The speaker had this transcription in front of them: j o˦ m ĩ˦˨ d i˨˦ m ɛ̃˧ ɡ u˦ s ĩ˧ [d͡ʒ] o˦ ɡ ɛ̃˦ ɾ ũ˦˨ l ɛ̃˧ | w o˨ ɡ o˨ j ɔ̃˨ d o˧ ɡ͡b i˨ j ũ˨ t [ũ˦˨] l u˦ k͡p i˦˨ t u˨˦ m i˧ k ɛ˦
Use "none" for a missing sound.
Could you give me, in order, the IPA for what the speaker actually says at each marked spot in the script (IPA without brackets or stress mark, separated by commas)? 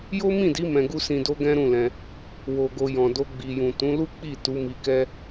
d, ũ˨˦